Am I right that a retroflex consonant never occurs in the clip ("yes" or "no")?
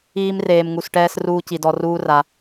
no